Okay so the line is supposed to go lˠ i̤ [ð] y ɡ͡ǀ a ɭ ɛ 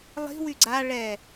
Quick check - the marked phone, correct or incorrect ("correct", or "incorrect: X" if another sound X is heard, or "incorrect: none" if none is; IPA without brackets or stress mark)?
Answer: incorrect: w